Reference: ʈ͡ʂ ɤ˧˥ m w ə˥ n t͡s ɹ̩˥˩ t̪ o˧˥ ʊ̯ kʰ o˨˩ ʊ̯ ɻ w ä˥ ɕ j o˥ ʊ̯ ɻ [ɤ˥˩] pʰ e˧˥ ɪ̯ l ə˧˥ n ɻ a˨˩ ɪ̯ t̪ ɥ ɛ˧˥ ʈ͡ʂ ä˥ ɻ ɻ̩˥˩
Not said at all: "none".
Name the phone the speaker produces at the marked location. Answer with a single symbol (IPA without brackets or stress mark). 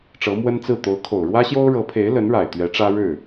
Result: ɤ˧˥